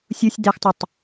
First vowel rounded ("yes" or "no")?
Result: yes